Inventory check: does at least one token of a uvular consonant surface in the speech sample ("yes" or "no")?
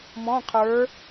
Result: yes